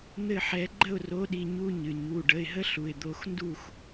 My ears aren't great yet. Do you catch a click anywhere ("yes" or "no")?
yes